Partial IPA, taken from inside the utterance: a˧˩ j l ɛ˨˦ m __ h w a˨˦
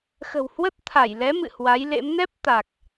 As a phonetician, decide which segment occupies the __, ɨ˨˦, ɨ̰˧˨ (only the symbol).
ɨ̰˧˨